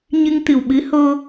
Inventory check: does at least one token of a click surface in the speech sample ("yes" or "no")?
no